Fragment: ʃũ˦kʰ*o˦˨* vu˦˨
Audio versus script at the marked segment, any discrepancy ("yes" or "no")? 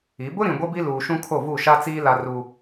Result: no